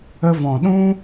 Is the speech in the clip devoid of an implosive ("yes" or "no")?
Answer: no